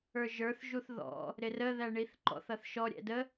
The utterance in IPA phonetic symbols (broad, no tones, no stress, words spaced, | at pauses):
ə˞ʒə˞θʒuθ ðɔ̰ | ɾɪrəðæ ɳiθǃɔ̰θʌθ ʃɔɾʲɛ̰ də